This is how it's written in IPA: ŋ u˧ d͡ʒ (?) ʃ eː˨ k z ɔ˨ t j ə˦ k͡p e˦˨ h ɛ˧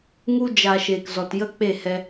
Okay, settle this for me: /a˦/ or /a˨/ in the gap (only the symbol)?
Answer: a˨